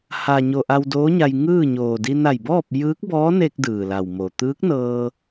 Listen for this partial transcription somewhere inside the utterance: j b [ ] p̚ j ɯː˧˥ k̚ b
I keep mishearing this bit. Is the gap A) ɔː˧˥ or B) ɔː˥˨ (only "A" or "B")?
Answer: B